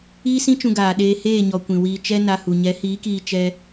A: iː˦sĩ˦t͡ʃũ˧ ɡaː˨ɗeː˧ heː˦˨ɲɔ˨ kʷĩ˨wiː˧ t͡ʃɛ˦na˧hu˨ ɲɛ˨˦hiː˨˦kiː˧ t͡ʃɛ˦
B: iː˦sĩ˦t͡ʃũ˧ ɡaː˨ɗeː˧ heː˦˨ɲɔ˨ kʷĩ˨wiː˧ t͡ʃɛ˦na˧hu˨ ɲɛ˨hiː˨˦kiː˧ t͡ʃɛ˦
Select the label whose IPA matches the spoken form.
A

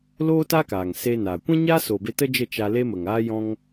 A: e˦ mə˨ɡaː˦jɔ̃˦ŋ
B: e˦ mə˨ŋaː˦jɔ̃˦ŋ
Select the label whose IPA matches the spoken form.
B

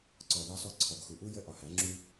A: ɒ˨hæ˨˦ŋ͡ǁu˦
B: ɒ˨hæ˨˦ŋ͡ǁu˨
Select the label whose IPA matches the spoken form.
A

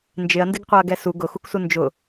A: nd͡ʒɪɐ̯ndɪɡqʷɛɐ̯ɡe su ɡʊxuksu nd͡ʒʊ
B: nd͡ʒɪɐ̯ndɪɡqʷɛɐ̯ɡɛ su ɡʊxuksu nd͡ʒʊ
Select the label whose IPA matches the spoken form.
B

